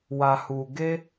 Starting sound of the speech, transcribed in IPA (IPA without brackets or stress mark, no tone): w